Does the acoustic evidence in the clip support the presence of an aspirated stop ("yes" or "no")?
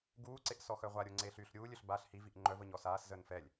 no